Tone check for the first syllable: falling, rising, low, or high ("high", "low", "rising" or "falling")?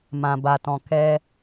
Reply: low